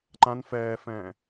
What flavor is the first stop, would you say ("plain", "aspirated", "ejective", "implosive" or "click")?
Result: click